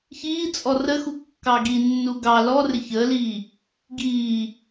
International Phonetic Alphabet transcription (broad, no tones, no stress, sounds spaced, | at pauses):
ç iː t͡sʼ ɔ r ə x u kː ɑ ɡ i nː u ɡ ɑ l ɔ r ɪ ç əː l iː | ɡ iː